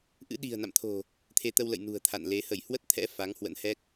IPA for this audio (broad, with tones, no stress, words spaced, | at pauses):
ʔɨ̰˧˥ɗi̤˨˩ə̯na̰˧˨mt̪ʰo̤˨˩ | t̪ʰe˨˦t̪ə˧wlə̰˧˨j nṳ˨˩ə̯t̪ʰa̰˧˨nle˨˦ hə˧˩jhwə˦˥t̚t̪ʰɛ̰˧˥ fa˨˦ŋhwə̰˧˥n hɛ˦˥k̚